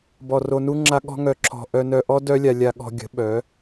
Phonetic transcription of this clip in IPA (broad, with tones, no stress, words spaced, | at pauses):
bɔ˨ro˧nu˦ŋ͡ǁa˦ ɠɔ̤˦ŋœ˧ ǁʰɔ̤˨ʔœ˧ nœ˧ʔɔ˦ dœ˦lʲa˧ lʲa˧ɠɔ̤˧ɡʲə̤˨˦ ɓœ˨˦